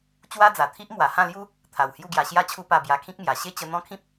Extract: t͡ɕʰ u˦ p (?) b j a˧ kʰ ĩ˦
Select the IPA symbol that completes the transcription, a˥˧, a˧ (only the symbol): a˧